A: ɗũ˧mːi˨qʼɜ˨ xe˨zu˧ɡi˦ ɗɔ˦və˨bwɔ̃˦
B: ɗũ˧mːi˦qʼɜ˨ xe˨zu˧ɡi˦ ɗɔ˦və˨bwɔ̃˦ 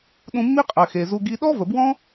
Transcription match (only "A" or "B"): B